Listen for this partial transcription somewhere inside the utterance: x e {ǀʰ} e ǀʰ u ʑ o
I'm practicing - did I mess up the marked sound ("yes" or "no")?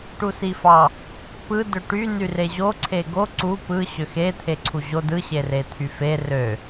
yes